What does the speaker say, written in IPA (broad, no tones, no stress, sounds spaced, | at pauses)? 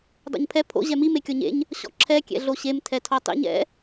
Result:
dˤ o̰ ɲ pʰ ɛ pʰ o̰ ʑ ɛ m i m e kʲ ɔ ɲ ḛ ɲ | ɕ ɔ̰ ǁʰ ɛ kʲ ɛ̰ ɮ o ɕ e m tʰ ɛ tʰ ɔ tˤ ḭ ɲ ɛ̰